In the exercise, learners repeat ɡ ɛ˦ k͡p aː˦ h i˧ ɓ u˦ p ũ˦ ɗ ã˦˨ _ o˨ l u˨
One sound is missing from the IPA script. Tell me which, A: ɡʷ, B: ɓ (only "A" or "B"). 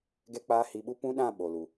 B